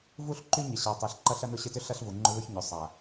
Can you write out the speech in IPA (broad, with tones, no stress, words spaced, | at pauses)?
vu˦ɬǃy˦ɲɪ˨ ɕa˨tˤe˨ɬǃɐ˦ ɬɐ˦nʊ˦ɕɪ˦tʏ˦ ɬɐ˦ɬvu˨ŋ͡ǃʊ˦ ðʊ˦ç ɲʏ˨sˤa˨